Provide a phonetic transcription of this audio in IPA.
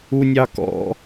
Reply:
u nʲ ɑ k ɔ̰

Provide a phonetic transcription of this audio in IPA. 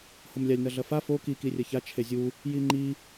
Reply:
h o m lʲ a lʲ n ɐ ɮ ɐ f a f o k i k i rʲ ɐ ç a t͡ʃʰ e zʲ u | j i ŋ͡ǃ i

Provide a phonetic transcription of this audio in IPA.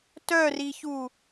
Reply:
t œ r i ç u

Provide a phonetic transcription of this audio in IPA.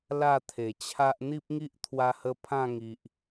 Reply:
l a˥˧ t̪ʰ e˨˩ t͡ɕʰ a˦ ʔ n̪ i˦ p̚ ŋ i˦ ʔ t̪ʰ w a˧ h ə˧ pʰ ã˥˧ ŋ i˨ ʔ

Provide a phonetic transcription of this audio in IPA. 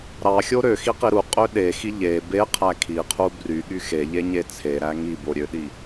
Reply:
ɾ ɑ xʲ o ɾ ø x i q i ɾ u qʼ ø ɗ e x i ʎ e b e qʰ æ kʰ i qʰ u b r y ɠ y x e ʎ e ɲ e t͡sʰ e ɾ æ ŋ i b o ɾʲ ø ɗ i

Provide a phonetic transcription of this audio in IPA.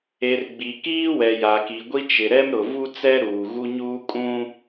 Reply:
e˨ r ɡ͡b i˨ k iː˦ w ɛ˨ j a˨ k i˨ ɡʷ i˦ t͡ʃ ɪ˨ ɾ ɛ˦ m ɾ ʊ˨ v u˦ t͡s ɛ˦ ɾ uː˨ ɣ u˦ ɲ uː˦ kʼ ũ˦

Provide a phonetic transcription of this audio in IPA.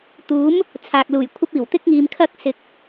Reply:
t̪ uː˨˥ m | t͡sʰ aː˨ k̚ l uː˨˩ j kʷʰ ɐ˥ p̚ iː˨˩ w t̪ ɪ˥ k̚ ŋ iː˨ m kʰ ɐ˥ k̚ s ɪ˨˥ k̚

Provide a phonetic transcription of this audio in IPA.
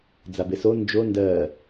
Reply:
d͡z a b e s o n d͡ʒ o n d ɜ

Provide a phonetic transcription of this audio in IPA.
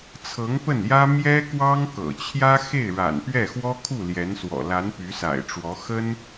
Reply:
t͡sʰ ɤ˧˥ ŋ p ə˥˩ n j ä˥ m j ɛ˥ k w ɑ˥ ŋ k ɤ̰˨˩ t͡ɕʰ j ä˥ x e˥˩ ɪ̯ ɻ a̰˨˩ n p ɥ ɛ˥˩ x w ɔ˥ kʰ u˥˩ l j ɛ˧˥ n s w ɔ̰˨˩ l a˧˥ n p y˧˥ s a̰˨˩ ɪ̯ ʈ͡ʂ w ɔ˧˥ x ə˥ n

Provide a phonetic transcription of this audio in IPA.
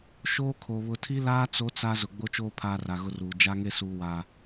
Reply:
ʃ oː˦ kʰ o˨ β ʊ˨ tʰ i˦ l aː˦ t͡s o˦ t͡s a˦ z ʊ˨ ɡ͡b o˦ t͡ʃ oː˦ pʰ aː˦ r a˨ ɣ ʊ˦ r uː˨ d͡ʒ a˦ ŋ e˦ s uː˦ w aː˦

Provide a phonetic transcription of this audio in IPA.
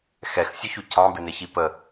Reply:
x ɛ x sʲ ʊ ç u cʰ ɑ̃ b ɪ n ɪ ç i p ə

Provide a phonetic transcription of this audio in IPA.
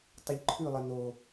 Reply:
tˤ ə ʎ ǃʰ ʉ lˠ ə n o

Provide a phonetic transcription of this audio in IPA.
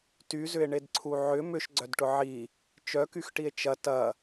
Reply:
t y z ʏ e̯ ɳ e d ǀʰ u ʕ ʏ m ʏ ʃ ɡ͡ǀ œ d ʈ ʊ ʕ i | t͡ʃ œ k y x ʈ i e̯ t͡ʃ ɐ t ɐ

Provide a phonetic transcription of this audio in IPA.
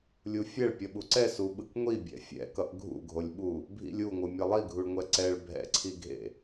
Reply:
lʲ u fʲ ɛ ɭ pʲ ʌ ɓ u ǀ ɛ s u ɓ ɯ k ŋʷ i bʲ ɛ̰ fʲ ɛ̰ k ʌ ʔ ɡʱ ṵ ɡʱ o lʲ ɓ u | bʱ ḭ lʲ u ŋʷ ɯ mʲ ʌ lˠ i ɡʱ u ɭ ŋʷ ɛ ǀ ɛ ɭ bʱ ɛ̰ ǀʰ i ɡʱ ḛ

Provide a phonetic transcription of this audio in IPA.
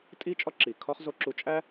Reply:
tʼ i˧ t͡ʃʼ ɒ˧ ǁ i˩ kʰ ɒ˥ χ z o˧ ǁ u˧ t͡ʃʼ æ˥

